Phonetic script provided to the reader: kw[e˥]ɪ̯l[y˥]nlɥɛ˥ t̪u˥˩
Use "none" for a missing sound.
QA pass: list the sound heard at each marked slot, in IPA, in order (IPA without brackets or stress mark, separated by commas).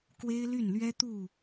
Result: e˥, y˥˩